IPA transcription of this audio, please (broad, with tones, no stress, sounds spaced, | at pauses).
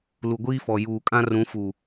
l u˨ ɡʷ iː˦ f ɔ˨ j uː˨ kʼ ã˦ r ũ˨˦ f u˨